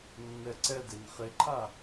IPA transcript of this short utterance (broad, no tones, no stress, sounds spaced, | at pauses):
nː ɛ ǀ ɛ d e n χ e ǃʰ a